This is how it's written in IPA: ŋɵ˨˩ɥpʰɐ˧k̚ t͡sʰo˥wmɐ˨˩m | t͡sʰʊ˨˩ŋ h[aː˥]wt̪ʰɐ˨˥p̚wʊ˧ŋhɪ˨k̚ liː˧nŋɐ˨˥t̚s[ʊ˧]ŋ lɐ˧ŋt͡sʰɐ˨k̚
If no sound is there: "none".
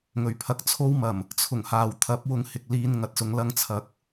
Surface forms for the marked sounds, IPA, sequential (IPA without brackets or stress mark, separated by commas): aː˨, ʊ˨˧